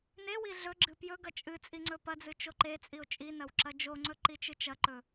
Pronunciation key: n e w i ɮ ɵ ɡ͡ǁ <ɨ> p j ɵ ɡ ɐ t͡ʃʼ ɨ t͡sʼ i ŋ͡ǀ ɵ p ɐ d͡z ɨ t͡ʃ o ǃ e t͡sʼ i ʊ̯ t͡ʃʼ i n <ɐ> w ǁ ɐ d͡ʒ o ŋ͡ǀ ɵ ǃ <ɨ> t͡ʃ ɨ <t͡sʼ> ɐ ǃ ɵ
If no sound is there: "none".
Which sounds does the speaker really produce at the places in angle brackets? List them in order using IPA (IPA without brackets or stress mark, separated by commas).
ɨ, ɐ, i, t͡ʃ